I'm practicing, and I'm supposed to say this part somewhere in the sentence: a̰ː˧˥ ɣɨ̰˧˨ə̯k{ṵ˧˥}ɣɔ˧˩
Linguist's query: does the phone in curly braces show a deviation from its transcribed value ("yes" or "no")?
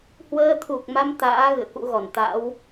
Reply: no